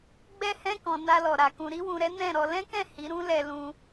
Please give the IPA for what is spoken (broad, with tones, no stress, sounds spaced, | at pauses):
ɡ͡b ɛ˧ h ɛ̃˧ k ɔ̃˨ n a˧ l ɔ˨ ɾ a˨ k ũ˨ ɾ i˧ w ũ˨ ɾ ɛ˨˦ n ɛ̃˦˨ ɾ ɔ˧ l ɛ̃˦ k ɛ̃˦˨ h i˨˦ ɾ ũ˦ l ɛ˧ l ũ˦